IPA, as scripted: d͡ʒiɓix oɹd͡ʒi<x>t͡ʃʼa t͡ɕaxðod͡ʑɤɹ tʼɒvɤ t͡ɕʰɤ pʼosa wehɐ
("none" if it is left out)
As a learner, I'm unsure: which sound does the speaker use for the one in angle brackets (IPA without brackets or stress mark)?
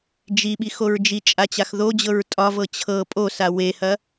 none